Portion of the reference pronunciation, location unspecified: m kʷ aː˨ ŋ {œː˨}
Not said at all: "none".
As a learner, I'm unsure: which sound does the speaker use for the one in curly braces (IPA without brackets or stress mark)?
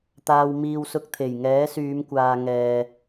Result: ɛː˨